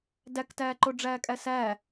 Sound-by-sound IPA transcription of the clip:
d æ k t æː ǃ o ɖ͡ʐ æː kʼ æ s æː

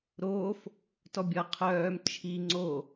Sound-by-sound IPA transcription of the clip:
ɾ oː f | t ɔ bʲ ʌ qʰ œː m t͡ʃʰ i ŋ͡ǀ o

